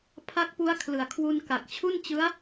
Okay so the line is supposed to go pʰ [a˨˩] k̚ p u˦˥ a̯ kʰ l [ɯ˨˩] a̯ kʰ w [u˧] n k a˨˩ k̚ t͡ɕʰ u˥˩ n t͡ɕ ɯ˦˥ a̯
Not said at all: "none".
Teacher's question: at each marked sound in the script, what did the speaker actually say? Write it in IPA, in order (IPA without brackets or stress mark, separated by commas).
a˦˥, ɯ˨˩, u˧